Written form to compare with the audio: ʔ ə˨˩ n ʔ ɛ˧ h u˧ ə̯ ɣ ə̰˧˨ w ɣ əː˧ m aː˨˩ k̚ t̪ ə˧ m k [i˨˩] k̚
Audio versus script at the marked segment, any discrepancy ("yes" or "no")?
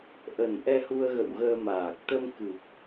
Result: yes